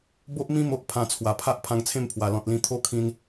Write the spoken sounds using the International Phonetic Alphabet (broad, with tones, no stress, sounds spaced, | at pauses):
b o˦ ʔ m ĩ˦ m o˦ ʔ pʰ ã˧ t͡sʰ w a˨˩ pʰ a˦ ʔ pʰ ã˧ ŋ t͡sʰ ẽ˥˧ m pʰ w a˨˩ l ɔ̃˨ t̚ l ĩ˧ t̪ʰ o˦ kʰ ĩ˧ n